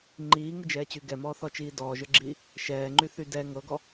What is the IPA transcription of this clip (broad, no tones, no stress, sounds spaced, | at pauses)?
ŋ͡ǃ iː ŋ ɨ d͡ʒ ɛː t͡ɕ y ɡ ɛ m ɔː θ ɔ t͡ʃ iː d ɔː ʒ ə˞ ɡ͡ǁ iː | ʃ ɛː ŋ͡ǃ y θ y d ɛ ŋ ɤ ɡ ɔ